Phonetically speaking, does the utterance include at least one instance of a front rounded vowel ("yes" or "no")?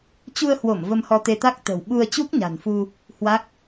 no